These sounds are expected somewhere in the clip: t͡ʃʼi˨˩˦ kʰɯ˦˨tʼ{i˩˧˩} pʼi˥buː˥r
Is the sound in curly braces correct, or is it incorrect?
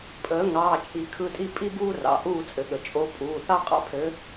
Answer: incorrect